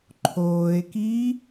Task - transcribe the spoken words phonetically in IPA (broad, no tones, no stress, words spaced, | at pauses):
ǃʰoːe̯kiː